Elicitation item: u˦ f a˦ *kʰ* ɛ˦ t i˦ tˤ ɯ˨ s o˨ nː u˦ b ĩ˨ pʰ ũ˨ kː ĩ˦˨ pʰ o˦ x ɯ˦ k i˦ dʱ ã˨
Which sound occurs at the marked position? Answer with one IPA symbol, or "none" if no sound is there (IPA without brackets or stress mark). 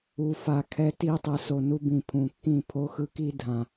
kʰ